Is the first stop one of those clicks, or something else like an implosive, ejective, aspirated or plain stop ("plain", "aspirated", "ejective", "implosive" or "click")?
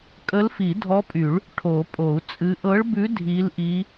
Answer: ejective